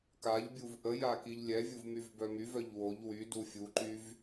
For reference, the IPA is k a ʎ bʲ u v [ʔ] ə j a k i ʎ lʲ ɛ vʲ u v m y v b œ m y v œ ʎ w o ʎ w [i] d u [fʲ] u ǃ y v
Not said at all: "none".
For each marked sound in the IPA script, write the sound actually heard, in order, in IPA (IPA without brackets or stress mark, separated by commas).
ʔ, y, fʲ